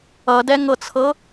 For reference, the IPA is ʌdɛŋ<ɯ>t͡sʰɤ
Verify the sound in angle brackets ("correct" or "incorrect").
incorrect